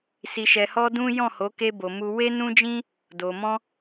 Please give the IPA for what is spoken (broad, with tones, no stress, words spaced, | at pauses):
si˨ʃɛ˨hɔ˧ dũ˦ jɔ̃˦˨ho˨˦ ke˧bo˨mu˧ we˦nũ˦d͡ʒĩ˦ | do˨ mɔ̃˧